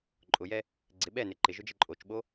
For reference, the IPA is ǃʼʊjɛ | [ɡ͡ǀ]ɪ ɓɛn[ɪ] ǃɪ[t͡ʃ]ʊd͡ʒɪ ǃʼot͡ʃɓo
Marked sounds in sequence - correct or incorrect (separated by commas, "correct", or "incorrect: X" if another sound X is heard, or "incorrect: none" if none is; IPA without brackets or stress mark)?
correct, correct, incorrect: ʒ